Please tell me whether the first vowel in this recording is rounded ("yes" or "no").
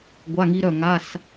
no